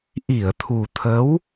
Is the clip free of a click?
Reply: yes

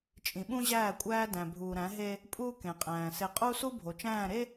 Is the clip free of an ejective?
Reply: no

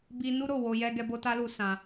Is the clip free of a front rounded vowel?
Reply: yes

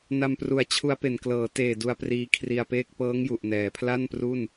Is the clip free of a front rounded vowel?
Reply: yes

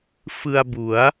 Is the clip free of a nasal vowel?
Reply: yes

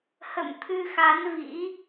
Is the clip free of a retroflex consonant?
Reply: yes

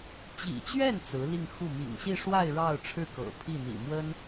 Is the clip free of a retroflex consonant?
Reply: no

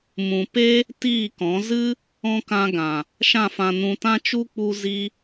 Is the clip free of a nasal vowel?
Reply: no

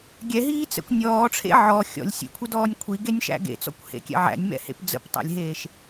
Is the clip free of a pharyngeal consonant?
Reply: no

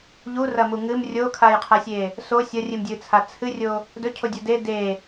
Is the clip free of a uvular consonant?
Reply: no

